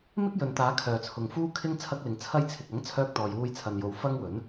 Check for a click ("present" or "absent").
absent